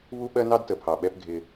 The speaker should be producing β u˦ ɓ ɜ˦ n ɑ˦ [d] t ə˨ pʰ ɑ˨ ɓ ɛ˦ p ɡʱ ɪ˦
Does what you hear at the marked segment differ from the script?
no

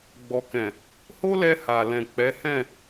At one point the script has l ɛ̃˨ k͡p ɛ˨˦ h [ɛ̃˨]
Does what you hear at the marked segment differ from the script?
yes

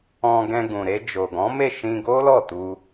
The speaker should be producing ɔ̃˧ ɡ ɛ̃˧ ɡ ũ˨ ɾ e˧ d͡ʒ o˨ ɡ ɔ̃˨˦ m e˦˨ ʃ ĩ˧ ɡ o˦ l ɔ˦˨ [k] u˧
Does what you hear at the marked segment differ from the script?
yes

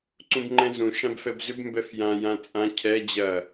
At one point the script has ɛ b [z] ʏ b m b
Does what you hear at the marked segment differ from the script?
no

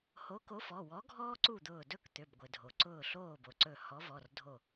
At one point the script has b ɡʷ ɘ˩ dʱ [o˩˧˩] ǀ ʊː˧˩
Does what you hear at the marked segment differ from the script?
yes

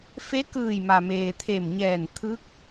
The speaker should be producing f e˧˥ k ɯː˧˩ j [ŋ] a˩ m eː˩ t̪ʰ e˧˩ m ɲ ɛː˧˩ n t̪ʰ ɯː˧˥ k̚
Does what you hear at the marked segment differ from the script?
yes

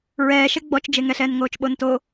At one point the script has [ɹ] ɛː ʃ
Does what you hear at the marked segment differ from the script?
no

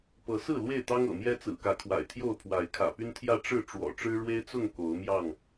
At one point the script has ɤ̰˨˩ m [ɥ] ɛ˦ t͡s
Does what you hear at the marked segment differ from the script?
yes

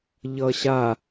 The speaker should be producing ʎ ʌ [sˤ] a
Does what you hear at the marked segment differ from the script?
yes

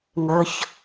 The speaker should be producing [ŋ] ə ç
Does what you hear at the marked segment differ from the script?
no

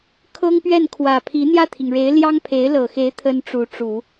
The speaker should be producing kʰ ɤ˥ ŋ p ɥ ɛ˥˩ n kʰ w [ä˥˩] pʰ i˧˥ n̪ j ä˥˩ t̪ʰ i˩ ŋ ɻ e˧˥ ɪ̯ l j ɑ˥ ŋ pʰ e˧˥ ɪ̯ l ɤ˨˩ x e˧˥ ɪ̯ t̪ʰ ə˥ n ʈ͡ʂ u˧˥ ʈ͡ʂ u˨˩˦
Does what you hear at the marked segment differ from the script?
yes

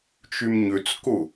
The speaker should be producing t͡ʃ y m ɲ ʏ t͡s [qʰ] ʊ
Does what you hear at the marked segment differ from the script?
yes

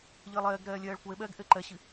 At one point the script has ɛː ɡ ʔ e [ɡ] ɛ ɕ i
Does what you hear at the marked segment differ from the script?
yes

